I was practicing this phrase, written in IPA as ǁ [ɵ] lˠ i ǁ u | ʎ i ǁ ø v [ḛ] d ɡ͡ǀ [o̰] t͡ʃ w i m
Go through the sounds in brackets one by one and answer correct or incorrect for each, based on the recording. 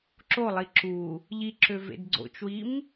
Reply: incorrect: o, correct, correct

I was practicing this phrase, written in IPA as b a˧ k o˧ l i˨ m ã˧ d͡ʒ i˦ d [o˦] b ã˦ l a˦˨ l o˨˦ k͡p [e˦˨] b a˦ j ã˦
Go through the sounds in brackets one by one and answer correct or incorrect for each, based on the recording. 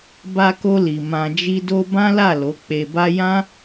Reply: correct, incorrect: e˧

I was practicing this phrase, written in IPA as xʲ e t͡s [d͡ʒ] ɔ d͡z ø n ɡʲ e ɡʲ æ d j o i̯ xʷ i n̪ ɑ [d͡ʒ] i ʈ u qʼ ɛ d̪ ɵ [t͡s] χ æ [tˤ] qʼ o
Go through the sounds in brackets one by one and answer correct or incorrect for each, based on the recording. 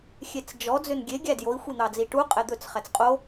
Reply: correct, incorrect: d͡z, correct, incorrect: t͡s

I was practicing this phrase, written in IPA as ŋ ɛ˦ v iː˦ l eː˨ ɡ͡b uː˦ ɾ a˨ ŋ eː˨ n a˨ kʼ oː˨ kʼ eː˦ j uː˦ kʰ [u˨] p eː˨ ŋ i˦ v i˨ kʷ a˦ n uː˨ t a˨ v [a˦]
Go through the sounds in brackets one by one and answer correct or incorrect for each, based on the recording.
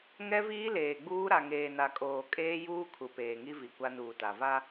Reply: correct, correct

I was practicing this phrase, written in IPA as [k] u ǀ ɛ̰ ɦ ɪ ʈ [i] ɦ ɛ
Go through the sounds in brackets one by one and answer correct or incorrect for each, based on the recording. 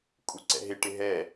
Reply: incorrect: kʼ, incorrect: ɪ

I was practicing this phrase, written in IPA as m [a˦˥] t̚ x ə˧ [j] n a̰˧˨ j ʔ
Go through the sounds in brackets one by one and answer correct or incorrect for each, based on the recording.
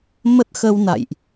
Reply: incorrect: ə˦˥, incorrect: w

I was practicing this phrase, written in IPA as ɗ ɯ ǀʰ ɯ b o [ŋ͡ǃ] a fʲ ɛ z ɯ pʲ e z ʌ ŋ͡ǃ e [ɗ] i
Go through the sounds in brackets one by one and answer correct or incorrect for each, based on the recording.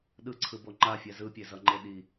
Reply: correct, correct

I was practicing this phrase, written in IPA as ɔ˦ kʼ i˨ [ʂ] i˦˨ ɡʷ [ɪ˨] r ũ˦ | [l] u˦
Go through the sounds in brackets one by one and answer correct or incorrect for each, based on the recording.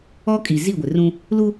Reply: incorrect: z, correct, correct

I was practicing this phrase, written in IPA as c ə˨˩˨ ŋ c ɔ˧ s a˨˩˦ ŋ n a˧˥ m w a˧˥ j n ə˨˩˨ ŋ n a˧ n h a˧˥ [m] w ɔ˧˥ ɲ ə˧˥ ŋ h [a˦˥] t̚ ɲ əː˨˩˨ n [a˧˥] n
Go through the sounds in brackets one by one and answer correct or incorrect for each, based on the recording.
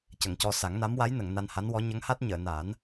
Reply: incorrect: n, correct, incorrect: a˨˩˦

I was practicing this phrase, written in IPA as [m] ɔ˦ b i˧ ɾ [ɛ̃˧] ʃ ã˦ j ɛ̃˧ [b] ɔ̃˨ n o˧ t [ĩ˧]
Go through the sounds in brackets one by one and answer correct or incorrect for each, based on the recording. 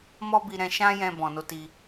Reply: correct, correct, correct, incorrect: i˧

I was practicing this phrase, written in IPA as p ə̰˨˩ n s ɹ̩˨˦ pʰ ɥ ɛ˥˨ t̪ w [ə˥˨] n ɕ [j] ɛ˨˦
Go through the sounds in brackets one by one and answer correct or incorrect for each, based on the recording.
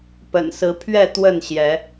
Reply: correct, correct

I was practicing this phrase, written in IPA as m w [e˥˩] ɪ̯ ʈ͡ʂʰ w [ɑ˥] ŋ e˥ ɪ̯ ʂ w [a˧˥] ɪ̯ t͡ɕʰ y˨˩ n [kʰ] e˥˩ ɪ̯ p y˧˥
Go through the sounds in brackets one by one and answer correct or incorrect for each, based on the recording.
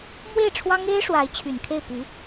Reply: correct, correct, correct, correct

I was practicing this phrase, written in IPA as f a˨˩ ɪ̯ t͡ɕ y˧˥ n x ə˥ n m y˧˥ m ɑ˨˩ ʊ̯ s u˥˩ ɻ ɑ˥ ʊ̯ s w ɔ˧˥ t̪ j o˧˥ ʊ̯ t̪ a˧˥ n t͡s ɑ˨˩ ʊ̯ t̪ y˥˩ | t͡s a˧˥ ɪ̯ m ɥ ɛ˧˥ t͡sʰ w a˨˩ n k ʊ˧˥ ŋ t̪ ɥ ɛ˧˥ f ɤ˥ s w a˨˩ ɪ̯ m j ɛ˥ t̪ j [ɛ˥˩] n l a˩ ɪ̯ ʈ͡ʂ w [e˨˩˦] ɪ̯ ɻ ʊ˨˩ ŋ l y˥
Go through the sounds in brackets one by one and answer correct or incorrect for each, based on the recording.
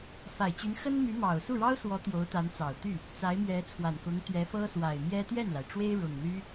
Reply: correct, incorrect: e˥

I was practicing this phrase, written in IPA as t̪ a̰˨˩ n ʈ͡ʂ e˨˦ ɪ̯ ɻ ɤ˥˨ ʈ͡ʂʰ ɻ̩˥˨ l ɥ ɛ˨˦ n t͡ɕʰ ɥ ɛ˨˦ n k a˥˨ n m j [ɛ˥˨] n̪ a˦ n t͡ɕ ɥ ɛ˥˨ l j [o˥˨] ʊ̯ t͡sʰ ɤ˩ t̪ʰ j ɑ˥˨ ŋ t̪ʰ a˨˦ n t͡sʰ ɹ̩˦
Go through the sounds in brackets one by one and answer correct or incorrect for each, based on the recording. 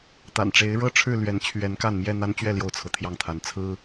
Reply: correct, correct

